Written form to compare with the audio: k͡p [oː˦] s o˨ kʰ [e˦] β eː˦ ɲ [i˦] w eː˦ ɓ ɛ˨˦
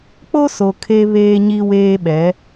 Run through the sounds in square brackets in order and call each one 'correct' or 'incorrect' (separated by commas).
incorrect, correct, correct